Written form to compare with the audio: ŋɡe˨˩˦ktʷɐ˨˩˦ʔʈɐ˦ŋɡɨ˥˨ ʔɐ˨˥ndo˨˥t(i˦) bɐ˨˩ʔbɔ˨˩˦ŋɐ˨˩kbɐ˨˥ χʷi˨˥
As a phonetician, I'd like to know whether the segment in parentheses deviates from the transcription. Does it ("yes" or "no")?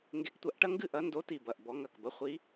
yes